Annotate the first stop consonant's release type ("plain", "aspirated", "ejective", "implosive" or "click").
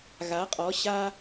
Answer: ejective